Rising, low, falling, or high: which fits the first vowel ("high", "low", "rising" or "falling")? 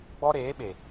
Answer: high